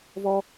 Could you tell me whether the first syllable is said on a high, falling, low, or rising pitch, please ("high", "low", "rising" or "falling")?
high